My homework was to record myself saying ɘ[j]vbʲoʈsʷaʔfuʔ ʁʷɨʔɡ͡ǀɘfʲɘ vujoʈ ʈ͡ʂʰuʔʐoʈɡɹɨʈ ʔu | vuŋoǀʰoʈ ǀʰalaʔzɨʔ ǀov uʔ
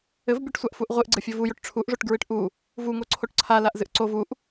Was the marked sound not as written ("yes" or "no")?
yes